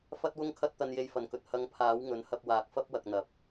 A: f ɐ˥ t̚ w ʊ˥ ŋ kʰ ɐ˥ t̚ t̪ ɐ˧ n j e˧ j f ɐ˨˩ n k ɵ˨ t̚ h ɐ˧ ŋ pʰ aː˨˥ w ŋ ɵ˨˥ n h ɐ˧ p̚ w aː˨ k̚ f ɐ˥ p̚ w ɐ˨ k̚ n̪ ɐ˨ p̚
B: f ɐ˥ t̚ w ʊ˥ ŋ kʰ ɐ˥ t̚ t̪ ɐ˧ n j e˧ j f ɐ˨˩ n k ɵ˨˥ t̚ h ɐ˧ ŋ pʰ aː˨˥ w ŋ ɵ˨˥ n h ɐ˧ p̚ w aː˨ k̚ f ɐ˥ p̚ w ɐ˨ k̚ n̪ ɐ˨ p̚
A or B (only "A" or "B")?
A